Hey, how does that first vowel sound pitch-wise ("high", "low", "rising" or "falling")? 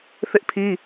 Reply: high